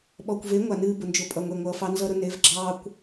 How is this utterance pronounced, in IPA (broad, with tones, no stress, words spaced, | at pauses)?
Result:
ɓɔ˨kʷve˨˦ ŋʷa˨nɨː˧ bʊ˨nd͡ʒʊ˨pʼʌ˨ ŋʷe˧ŋʷʌː˧fɑ˦ nzʌ˦ɾʊ˦ ne˨˦vɡ͡ǁɑː˦kʷ